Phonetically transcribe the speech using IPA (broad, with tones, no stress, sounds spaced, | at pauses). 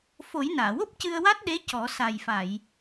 f o˨˩˦ j n aː˨˩˨ w o˦˥ p̚ c ɨ˧ ə̯ w a˦˥ t̚ ɗ e˧˥ c ɔ˨˩˦ s a˨˩ j f a˨˩˨ j